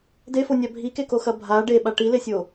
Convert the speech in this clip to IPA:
d e f o nʲ a bʱ i k e k o x ɐ bʱ a ɖ e ɓ a ʈ i l e sʲ o

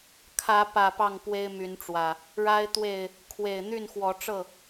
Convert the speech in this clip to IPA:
kʰ ä˨˦ p ä˨˩ p ɑ˥˨ ŋ p w e˦ ɪ̯ m y˨˦ n ʈ͡ʂ w ä˨˩ | ɻ a˦ ɪ̯ t̪ w e˥˨ ɪ̯ | kʰ w e˨˩ ɪ̯ n̪ y˥˨ n x w ɔ˨˦ ʈ͡ʂ ɤ˥˨

